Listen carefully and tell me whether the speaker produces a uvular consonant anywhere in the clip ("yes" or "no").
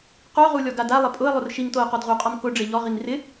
yes